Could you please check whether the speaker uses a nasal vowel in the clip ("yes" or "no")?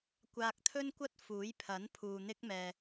no